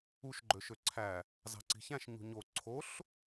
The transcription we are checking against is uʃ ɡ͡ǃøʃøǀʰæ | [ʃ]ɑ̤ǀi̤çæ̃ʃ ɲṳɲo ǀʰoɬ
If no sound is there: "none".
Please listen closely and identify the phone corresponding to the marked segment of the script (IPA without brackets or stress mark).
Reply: z